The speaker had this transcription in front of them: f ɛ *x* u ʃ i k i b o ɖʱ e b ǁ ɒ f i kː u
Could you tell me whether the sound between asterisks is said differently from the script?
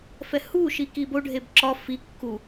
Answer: yes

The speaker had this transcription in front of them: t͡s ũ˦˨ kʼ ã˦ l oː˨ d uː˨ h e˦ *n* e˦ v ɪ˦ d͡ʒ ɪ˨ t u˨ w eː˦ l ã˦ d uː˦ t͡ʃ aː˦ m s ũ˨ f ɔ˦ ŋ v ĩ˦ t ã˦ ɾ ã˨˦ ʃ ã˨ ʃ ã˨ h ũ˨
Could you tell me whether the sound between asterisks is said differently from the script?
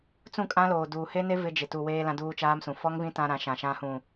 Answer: no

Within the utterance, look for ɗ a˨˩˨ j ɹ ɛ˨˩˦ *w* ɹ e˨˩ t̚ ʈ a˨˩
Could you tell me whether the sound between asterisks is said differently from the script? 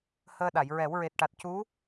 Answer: no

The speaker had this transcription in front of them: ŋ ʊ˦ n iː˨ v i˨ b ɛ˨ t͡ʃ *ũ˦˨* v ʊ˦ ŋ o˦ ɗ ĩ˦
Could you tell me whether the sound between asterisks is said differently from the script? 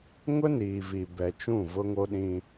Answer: no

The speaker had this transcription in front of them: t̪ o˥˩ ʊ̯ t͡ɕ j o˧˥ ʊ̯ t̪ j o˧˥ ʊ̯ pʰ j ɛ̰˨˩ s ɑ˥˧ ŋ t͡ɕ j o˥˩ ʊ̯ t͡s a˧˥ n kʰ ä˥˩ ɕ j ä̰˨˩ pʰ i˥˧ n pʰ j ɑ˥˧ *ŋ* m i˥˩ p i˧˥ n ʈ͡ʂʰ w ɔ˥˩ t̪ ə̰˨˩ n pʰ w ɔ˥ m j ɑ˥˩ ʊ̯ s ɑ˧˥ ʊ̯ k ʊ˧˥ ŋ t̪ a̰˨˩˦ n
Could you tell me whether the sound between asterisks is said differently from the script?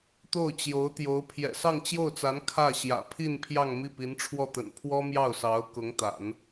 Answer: no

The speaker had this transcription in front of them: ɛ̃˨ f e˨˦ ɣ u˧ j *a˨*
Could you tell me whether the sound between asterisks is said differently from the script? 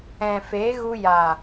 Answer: no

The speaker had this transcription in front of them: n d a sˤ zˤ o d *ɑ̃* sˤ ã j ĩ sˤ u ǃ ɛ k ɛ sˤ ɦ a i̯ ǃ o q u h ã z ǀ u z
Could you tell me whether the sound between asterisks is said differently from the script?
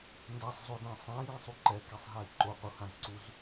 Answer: yes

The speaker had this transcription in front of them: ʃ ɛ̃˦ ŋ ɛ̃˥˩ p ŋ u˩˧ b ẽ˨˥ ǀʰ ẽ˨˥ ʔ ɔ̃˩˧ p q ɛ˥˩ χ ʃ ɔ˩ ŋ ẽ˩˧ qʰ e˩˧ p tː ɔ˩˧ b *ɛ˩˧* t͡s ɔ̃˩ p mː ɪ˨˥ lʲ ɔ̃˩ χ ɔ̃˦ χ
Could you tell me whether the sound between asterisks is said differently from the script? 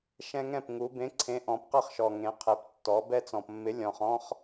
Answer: yes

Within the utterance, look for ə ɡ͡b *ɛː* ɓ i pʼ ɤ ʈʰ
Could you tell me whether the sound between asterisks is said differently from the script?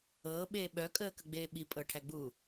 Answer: yes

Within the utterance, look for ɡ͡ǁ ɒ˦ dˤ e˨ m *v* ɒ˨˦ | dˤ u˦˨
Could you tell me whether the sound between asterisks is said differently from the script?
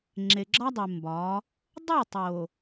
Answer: yes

